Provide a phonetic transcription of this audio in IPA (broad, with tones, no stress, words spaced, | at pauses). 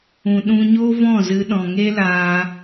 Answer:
ũ˨ɗũ˧ ɲoː˦vɔ̃˦˨ zɨ˧ɗɔ̃˨ ŋe˦laː˧